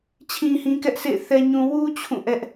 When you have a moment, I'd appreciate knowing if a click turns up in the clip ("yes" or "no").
no